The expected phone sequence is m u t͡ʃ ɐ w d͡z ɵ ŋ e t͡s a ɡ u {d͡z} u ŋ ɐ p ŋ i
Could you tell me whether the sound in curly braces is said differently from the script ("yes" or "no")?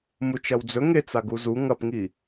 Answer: yes